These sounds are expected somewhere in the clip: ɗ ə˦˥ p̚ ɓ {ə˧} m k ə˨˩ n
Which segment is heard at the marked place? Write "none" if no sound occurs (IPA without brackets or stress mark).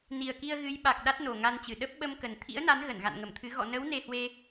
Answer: ə˧